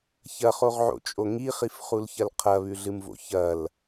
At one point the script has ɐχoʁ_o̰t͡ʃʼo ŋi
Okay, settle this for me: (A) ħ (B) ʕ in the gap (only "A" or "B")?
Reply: B